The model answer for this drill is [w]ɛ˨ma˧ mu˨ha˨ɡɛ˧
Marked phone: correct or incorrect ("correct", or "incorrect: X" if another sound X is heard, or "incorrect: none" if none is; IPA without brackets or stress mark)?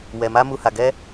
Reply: correct